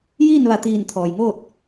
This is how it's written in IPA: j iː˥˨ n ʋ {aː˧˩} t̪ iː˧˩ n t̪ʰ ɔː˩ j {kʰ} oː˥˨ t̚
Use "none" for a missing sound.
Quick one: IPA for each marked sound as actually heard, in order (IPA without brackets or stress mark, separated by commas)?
a˧˩, ŋ